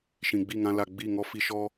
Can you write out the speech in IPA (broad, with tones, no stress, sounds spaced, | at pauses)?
ʃ ĩ˨ ɡ͡b i˦˨ ŋ ã˧ l a˨ ɡ͡b i˦˨ ŋ ɔ˦ f i˧ ʃ ɔ˦